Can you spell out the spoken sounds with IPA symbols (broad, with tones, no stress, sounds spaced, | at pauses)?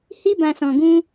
h i˧ b ã˨ s ɔ̃˨ ɡ ũ˧